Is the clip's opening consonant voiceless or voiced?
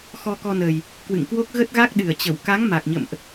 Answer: voiceless